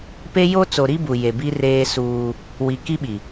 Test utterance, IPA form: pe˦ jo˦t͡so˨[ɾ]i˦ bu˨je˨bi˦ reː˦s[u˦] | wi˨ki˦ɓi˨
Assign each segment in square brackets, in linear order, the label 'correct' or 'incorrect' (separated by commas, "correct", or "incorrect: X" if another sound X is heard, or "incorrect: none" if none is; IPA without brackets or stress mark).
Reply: correct, incorrect: uː˦